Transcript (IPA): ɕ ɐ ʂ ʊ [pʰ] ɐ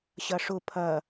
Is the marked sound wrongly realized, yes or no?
no